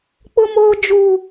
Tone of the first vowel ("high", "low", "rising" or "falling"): high